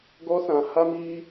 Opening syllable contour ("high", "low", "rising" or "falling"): high